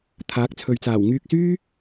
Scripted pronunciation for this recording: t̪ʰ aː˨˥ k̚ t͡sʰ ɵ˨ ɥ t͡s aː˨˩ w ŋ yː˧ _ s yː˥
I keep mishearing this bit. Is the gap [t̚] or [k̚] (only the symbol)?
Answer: k̚